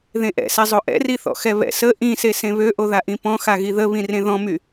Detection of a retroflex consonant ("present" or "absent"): absent